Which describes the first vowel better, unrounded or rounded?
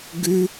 rounded